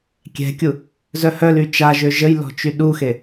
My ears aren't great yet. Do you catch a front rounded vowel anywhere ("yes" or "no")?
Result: yes